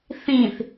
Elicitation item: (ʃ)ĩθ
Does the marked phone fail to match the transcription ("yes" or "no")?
yes